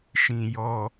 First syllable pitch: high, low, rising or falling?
low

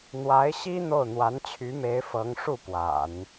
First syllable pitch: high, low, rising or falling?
rising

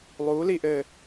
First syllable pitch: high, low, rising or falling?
rising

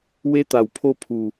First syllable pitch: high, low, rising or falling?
high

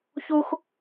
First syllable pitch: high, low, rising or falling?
high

